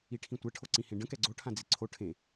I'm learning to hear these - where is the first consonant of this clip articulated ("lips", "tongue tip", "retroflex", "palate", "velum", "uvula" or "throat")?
retroflex